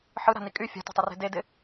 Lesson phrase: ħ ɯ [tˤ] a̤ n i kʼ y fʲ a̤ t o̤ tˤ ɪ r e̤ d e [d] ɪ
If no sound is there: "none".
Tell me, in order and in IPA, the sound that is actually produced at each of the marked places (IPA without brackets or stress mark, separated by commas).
ɾ, d